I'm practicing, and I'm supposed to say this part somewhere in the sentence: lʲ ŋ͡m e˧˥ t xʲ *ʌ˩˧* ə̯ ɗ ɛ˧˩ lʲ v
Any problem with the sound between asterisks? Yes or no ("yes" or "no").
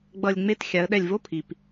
yes